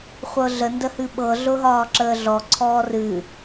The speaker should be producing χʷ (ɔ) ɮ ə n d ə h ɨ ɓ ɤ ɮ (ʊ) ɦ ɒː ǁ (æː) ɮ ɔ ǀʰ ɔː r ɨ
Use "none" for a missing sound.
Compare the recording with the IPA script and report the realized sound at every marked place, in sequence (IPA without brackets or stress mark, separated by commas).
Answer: ɤ, ʊ, əː